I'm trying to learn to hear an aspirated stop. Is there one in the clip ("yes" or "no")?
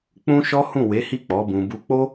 no